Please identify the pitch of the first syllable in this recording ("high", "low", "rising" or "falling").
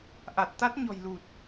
low